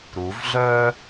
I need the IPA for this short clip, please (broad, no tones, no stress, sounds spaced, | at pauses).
ɾ u v ɮ œː